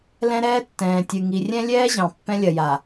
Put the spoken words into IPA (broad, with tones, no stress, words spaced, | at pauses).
lɛ̃˦ ɾɛː˦tːɛ̃ː˨tʲɨ˨ ŋi˨rʲɛ̃˦lʲɛː˦ʑɑ̃˨ pːɛ̃˦lʲɐ˨ja˨